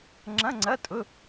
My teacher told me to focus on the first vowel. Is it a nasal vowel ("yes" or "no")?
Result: yes